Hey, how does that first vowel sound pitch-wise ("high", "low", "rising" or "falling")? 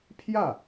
falling